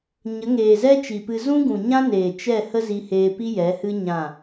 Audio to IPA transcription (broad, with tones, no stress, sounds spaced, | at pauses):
ɲ ə˨˦ ŋ eː˨ z ɛ˦ t͡ʃ i˨ p ɨ˧ z ũ˦ ɡ ũ˨ ɲ ã˦ n eː˨ t͡ʃ ɛ˦˨ h ə˦ z i˧ h eː˧ p i˦ j ɛ˨˦ h ɨ˦ ɲ ã˦˨